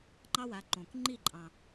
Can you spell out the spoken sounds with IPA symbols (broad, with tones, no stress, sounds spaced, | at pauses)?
ŋ͡ǃ ɑ˥ w a˩˥ ǃ õ˩ k ŋ͡ǃ i˥˩ ǃʼ ɑ̃˩